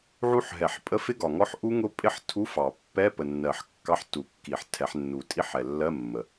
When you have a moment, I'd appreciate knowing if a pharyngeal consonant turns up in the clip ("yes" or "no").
yes